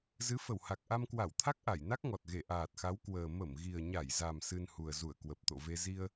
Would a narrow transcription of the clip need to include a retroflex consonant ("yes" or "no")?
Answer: no